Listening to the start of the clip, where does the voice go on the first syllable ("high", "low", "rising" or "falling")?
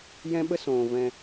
high